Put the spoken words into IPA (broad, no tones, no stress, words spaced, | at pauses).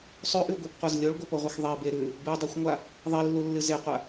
sˤʉʔʉɡʷibqʷaz lʲoɭɡʷɨpoʁʷɐx ðˤibe ɾʉ | bɨdˤuxʷŋʷa | ðˤilːulːɨ zeqʷa